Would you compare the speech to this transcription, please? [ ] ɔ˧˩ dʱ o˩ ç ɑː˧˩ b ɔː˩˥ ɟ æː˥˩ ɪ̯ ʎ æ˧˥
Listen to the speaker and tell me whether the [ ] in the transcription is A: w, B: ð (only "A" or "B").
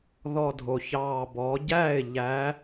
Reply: B